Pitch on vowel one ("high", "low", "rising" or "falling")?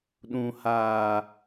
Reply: low